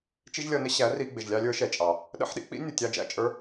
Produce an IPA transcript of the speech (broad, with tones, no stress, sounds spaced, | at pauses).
t͡ʃ i˦ ʒ lʲ ʌ˧ n ɪ˦ ɕ æ˨˦ r i˧ ɡ͡b ɪ˨ ʒ lʲ ɑ˧ lʲ ə˞˨˦ ʃ ɛ˨ t͡ʃʼ ɑ˨ | ɗ ə̰˦ ħ ɗ ḭ˦ k͡p ḭ˦ nʲ u˨ tʲ ɑ˧ d͡ʒ æ̰˦˨ t͡ʃʼ ə˞˦